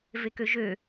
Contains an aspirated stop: no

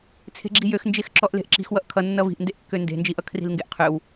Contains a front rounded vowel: yes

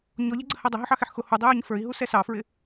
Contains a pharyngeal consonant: yes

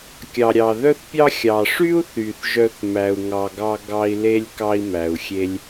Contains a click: no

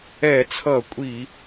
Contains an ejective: yes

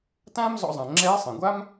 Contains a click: yes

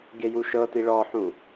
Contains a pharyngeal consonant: yes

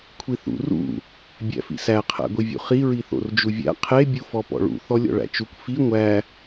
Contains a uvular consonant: yes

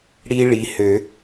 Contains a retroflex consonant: yes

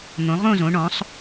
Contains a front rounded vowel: no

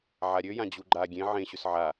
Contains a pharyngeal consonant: yes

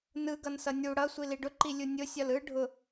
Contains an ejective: no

